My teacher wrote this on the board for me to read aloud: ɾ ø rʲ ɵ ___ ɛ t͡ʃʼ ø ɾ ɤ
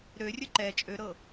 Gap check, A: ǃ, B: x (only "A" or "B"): A